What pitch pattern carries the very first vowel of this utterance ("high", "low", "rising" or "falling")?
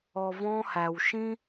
low